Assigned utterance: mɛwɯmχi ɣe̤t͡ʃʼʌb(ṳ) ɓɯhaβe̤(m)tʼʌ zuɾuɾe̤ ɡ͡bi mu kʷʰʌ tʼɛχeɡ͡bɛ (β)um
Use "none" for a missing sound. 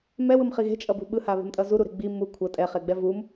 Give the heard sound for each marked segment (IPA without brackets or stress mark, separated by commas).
ṳ, m, v